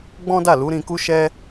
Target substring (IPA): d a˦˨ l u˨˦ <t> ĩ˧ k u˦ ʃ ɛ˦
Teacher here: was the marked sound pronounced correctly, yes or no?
no